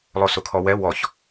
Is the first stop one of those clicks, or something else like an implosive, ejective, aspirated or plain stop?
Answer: aspirated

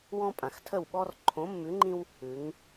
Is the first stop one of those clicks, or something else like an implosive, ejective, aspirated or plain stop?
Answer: ejective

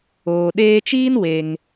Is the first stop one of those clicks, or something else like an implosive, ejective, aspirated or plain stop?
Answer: implosive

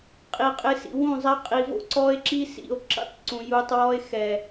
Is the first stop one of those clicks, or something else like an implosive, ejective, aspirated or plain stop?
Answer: ejective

